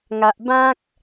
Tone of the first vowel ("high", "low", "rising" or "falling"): low